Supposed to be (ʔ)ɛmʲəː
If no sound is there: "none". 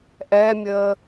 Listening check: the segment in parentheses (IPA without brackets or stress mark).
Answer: ʔ